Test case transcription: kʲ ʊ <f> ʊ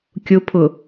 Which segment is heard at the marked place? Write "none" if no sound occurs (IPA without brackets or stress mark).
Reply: pʰ